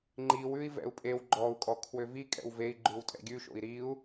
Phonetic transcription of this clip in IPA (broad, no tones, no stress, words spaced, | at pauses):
ŋ͡ǃiwʉi̯ vɛ̰u̯pʼew ɡ͡ǃɔu̯kʼɔ kʰwøvi kʼɛ̰wvei̯ ɡ͡ǃʉwtʼɛ̰ɡʲʉʃo̰i̯ ɾiu̯